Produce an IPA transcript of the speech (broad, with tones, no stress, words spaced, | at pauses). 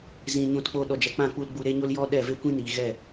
zĩ˧ɲũ˦˨tk͡po˦ ɗɔ˨d͡ʒɛ˨k͡pã˦˨k͡pu˧l ɡ͡bu˧ɾe˦ɲo˦l jɔ˦ɗɛ˦˨ ve˦kʷĩ˦niː˨ ɣɛ˦˨